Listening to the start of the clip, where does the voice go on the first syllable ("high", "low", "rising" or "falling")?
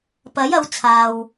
rising